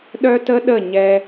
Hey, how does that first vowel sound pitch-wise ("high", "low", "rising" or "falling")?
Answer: high